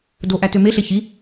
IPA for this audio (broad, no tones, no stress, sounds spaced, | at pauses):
d o ʔ æ t ø m e ɬ e ç i